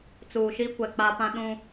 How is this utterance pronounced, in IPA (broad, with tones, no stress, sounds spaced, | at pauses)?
t͡s uː˨ ʃ i˦ kʷ ɛ˨ k͡p a˦ p ã˦ ɗ ũ˦